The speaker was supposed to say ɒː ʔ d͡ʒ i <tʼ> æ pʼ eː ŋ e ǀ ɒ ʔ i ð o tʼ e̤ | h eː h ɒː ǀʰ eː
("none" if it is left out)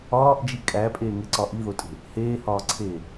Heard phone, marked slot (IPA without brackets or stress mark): kʼ